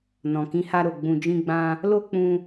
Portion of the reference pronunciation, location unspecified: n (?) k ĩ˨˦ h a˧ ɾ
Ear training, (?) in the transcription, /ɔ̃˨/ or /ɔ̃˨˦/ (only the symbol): ɔ̃˨